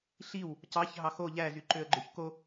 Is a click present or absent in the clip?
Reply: present